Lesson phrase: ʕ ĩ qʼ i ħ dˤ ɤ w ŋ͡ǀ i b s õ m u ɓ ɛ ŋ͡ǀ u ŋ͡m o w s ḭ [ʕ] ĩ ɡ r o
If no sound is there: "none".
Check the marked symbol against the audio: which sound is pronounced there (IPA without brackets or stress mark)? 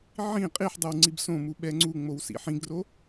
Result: ħ